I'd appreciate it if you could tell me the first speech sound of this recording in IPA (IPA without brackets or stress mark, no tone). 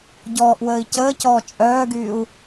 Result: ɟ